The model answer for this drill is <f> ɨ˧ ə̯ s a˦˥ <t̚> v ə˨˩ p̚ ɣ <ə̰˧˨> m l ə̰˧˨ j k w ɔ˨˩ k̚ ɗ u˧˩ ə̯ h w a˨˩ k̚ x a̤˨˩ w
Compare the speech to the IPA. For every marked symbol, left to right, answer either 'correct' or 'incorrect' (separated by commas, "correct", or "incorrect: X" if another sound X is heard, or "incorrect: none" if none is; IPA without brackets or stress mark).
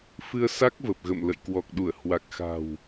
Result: correct, incorrect: k̚, correct